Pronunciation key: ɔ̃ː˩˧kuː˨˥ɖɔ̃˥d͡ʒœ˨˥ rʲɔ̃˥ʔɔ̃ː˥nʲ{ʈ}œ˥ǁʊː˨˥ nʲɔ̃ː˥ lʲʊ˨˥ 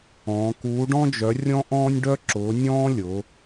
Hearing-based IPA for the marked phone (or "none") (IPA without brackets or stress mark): ɖ